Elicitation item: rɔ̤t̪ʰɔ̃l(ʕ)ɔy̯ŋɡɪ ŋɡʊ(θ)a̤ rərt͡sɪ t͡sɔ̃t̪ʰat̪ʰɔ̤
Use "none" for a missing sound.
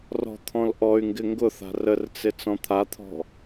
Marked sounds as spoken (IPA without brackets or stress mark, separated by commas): ʔ, θ